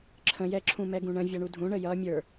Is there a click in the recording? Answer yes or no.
yes